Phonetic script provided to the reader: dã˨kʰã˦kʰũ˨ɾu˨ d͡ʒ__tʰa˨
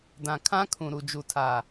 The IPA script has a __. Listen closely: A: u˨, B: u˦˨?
A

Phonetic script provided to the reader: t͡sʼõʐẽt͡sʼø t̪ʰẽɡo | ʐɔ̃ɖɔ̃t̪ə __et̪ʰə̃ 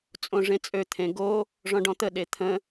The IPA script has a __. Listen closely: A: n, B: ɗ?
B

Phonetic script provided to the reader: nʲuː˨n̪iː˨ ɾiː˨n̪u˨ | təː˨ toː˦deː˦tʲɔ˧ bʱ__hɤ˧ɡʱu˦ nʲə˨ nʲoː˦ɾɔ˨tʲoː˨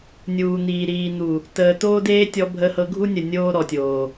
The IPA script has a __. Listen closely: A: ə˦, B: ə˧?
B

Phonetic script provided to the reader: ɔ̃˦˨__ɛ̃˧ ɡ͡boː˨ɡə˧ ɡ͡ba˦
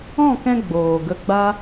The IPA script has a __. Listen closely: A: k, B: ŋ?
A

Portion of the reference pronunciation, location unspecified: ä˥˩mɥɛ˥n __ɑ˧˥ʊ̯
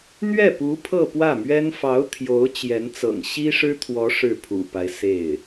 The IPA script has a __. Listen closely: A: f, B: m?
A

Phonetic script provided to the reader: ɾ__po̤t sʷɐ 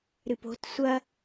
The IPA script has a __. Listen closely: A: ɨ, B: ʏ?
A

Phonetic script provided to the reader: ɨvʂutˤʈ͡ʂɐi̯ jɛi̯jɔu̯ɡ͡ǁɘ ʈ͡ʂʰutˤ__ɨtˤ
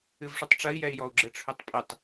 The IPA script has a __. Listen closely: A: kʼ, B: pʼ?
B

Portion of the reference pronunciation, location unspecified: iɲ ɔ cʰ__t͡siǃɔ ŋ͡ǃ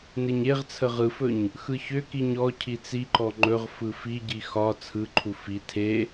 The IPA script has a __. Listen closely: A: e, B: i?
B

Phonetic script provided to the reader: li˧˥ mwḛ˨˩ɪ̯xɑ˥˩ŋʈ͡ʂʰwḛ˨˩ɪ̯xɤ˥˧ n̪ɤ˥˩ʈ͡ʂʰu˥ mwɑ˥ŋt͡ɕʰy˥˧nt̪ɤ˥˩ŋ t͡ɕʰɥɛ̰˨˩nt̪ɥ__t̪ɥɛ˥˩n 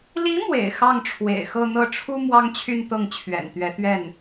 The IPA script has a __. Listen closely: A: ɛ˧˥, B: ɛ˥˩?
A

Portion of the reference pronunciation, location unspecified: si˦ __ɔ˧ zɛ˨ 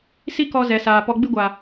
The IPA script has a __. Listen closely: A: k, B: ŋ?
A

